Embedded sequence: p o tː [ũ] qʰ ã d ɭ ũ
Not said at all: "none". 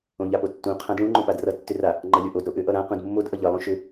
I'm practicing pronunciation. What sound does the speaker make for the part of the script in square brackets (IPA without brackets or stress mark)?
ũ